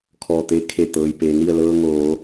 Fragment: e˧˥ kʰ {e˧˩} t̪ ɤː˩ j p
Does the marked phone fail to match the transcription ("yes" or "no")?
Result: no